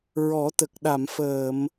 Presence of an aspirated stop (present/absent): absent